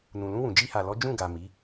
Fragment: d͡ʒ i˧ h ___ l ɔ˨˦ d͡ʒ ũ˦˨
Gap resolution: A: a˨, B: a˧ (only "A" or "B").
A